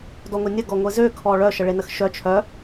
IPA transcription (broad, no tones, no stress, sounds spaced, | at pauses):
d ɔ ŋʷ e nʲ ə ɡ ɔ ŋʷ e z ø kʰ ɔ ɭ œ ʃ ə ɭ e n ə x ʃ œ t͡ʃʰ œ